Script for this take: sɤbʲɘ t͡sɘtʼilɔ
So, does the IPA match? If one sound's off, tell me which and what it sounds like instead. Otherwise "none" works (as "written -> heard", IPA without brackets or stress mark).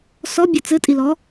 ɤ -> ɔ